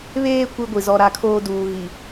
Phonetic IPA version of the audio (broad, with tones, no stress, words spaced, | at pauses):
βeː˦ kʷi˦ɡʷi˨zɔ˦ ɾa˦˨kʰoː˦duː˨ ɣi˨